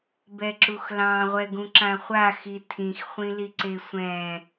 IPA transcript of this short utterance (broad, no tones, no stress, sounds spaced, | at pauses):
b ɛ ǁ u x l ɑ̃ ʁʷ ɛ ɡ ũ ǁ ã χʷ a x i tʰ ĩ x χʷ ĩ l i ǀ e sʷ ɛ̃